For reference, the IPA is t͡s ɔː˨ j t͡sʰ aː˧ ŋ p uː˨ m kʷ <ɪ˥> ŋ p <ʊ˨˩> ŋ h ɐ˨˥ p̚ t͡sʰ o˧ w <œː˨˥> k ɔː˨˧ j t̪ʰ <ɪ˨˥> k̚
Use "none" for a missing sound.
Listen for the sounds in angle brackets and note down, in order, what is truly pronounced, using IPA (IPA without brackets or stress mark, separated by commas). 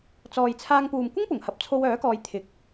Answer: ɪ˥, ʊ˨˩, œː˨˥, ɪ˨˥